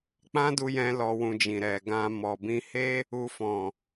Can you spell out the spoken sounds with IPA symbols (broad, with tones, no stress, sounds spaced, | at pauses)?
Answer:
k͡p ã˦ d u˧ j ɛ̃˧ l ɔ˧ w ũ˧ d͡ʒ ĩ˨ ɾ ɛ˨ ɡ ã˧ m ɔ˨ b ĩ˧ h e˦ | u˧ f ɔ̃˨